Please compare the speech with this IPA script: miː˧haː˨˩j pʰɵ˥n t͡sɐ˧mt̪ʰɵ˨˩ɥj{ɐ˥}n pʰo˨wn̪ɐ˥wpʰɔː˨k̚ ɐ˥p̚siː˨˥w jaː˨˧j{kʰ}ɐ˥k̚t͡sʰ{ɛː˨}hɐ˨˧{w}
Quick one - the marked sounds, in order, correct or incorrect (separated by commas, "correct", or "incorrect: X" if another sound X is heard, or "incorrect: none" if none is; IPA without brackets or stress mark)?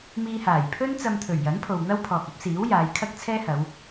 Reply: incorrect: ɐ˨˥, correct, incorrect: ɛː˥, correct